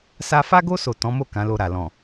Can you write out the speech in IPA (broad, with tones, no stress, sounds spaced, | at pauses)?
s a˧ f a˦ ɡ o˦ s o˦˨ t ɔ̃˨˦ m o˦˨ k ã˨˦ l o˧ ɾ a˨ l ɔ̃˨